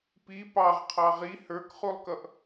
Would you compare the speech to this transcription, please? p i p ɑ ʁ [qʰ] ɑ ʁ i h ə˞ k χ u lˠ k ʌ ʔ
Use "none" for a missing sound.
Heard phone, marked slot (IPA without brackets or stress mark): qʰ